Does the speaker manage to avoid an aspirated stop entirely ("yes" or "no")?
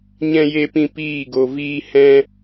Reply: yes